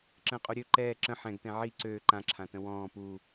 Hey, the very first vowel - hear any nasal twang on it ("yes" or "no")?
yes